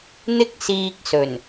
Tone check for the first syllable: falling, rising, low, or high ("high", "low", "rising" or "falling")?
high